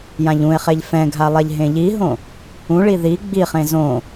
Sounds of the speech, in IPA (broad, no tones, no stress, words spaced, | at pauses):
jãʎũe̯χeʎ fɛ̃ɡʱa lˠɛʎɦẽʎiɦõ | ũɭi ði ɡ͡biχẽ zõ